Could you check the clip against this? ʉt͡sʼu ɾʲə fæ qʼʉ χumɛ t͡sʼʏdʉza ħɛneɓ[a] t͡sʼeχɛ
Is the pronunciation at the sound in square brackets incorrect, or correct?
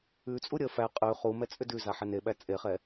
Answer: incorrect